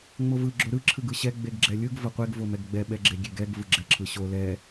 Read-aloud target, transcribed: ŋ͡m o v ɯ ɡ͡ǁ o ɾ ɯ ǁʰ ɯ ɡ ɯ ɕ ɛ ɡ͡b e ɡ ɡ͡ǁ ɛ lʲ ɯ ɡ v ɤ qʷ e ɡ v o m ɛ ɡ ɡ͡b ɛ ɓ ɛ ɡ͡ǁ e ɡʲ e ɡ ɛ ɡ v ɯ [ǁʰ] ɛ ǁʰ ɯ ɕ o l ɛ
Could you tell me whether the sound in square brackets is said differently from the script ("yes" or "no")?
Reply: yes